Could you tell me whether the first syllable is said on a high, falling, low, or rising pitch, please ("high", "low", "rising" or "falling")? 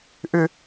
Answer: high